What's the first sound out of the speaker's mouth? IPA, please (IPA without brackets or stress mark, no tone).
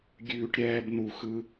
ɡʲ